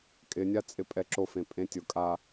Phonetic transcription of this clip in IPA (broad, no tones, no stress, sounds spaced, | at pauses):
kʼ ɪ nʲ a t͡sʼ ɪ pʼ ɛ ǁ o f ẽ pʼ ẽ tʲ ʊ kʼ a